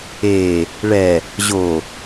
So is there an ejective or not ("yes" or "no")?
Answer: no